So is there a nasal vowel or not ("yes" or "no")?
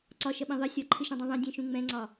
yes